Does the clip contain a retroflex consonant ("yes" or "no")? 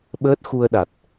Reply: no